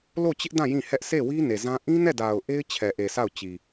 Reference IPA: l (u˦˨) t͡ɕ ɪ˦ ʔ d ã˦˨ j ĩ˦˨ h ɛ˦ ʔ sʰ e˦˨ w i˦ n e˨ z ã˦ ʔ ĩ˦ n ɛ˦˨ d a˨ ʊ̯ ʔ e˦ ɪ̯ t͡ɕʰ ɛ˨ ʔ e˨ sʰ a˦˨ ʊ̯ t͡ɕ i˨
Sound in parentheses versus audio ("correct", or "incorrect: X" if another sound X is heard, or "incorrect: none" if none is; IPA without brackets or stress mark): incorrect: o˦˨